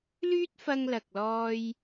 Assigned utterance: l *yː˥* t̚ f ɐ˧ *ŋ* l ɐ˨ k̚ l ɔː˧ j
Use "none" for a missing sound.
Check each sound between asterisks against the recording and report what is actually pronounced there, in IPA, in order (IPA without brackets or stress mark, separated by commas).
yː˥, ŋ